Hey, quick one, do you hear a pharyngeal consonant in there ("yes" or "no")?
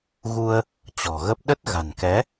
no